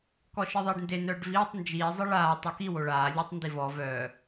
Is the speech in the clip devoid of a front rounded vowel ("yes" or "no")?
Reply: no